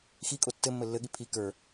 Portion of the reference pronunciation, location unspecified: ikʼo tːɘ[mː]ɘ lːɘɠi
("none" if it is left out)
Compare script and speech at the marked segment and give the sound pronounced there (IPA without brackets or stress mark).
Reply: mː